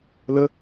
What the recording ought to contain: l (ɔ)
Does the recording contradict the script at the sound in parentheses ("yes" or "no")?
yes